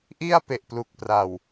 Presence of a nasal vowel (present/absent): absent